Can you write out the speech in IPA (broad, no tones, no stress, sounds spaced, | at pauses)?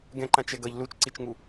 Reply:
ɡ ɛ̃ ǃ ã t͡ʃ ɛ ɡ ʌ ʎ l u t͡ʃ ǀ i t͡ʃ ŋ u